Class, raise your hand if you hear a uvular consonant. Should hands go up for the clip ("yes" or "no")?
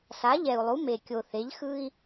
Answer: no